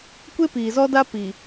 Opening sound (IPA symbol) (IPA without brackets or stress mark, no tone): kʷ